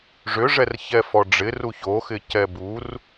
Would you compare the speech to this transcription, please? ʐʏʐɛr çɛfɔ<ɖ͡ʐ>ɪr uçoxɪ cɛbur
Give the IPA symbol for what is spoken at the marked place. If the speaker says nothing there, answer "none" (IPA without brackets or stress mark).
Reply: ɖ͡ʐ